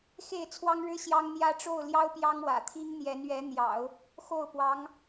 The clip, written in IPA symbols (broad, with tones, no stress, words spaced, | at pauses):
xe˥˩ɪ̯t͡sʰwɑ˥ŋɻɻ̩˥ ɕjɑ˥ŋn̪jä˥ ʈ͡ʂo˥˩ʊ̯ljɑ˥ʊ̯ pjɑ˥ŋwä̰˨˩t̪ʰi˥ŋ n̪jɛ˧˥nɥɛ˧˥n̪jɑ̰˨˩˦ʊ̯ | xo˥˩ʊ̯pwɑ˧˥ŋ